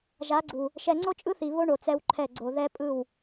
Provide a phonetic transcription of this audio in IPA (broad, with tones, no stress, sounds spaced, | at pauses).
ʒ a˨˦ ɡ͡ǀ u˨ | ʃ ɛ˨ ŋ͡ǀ o˦ t͡ʃʼ ɯ˦ θ i˨ β o˦ ɳ o˨ t͡s ɛ˦ w ǃʰ ɛ˦˨ ɡ͡ǀ o˨ ð ɛ˦ pʼ ɯ˦˨ w